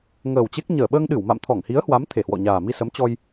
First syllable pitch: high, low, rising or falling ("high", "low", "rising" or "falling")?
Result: low